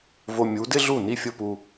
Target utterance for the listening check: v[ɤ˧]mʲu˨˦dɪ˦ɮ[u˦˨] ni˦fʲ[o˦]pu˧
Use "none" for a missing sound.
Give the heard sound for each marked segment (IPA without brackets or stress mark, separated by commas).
o˧, u˦˨, o˦